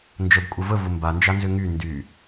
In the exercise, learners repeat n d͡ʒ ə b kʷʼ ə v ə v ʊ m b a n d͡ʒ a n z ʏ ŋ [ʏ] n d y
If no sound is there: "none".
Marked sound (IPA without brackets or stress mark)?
y